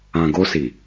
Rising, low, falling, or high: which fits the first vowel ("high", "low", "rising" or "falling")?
low